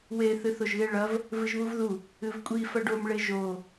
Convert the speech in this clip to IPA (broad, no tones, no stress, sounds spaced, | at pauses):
w e θ ɨ θ o ʒ ɣ e ɭ ɐ v | v ɨ ʒ β u v ð u | ɨ v kʷʼ i f ɐ ɖ o m ɭ e ʒ o